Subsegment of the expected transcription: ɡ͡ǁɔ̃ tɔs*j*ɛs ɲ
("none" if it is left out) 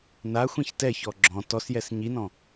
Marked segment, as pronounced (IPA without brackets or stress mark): j